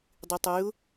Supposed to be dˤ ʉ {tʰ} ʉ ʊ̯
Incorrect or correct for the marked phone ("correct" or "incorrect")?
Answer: incorrect